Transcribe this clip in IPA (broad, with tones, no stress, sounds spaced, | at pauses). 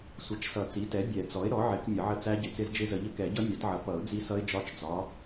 sʷ ə˨˩˦ t͡ʃ s ʌ˨˩˦ t͡s i˩˥ t ɛ˩˥ bʲ ɛ˨˩˦ t͡s ɔ˩˥ ɪ̯ ɾ ɔ˩˥ ʕ ɪ˨˩˦ k mʲ ʌ˨˩˦ ʕ ə˦˥ t͡s æ˦˥ ɟ ɪ˨˩˦ t͡s ɪ˦˥ z d͡ʒ ɪ˦˥ z ə˨˩˦ ʎ ə˦˥ k ɛ˨˩˦ ɟ ʌ˦˥ mʲ ɒ˨˩˦ t ʕ ʌ˩˥ p ʌ˨˩˦ ʊ̯ d͡z i˦˥ s ʌ˦˥ ɪ̯ d͡ʒ ɒ˦˥ t͡ʃ d͡z ɒ˩˥